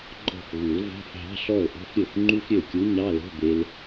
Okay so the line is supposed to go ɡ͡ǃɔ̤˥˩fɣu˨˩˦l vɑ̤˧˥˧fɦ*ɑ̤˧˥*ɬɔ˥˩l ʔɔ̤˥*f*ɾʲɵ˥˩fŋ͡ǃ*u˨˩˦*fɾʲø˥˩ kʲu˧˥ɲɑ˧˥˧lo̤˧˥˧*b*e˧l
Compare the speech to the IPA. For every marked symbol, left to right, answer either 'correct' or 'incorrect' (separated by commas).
incorrect, correct, incorrect, correct